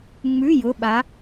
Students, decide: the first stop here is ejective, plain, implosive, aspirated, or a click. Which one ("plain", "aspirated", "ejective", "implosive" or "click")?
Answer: implosive